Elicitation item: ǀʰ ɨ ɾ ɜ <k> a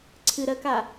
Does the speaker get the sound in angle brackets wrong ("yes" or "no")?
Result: no